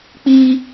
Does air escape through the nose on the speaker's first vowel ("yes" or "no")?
no